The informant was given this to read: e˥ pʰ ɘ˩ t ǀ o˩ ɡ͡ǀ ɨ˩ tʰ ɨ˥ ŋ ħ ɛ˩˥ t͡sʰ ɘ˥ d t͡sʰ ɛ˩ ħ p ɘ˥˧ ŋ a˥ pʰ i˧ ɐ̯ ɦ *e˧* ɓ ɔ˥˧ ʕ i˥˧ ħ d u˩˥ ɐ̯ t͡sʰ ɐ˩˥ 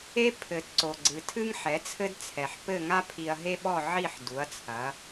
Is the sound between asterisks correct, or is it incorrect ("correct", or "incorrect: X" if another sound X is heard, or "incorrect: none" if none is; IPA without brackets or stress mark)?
incorrect: e˥